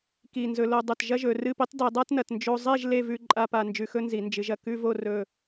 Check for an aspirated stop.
absent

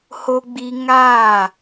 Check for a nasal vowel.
absent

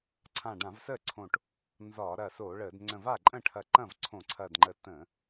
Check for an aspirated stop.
present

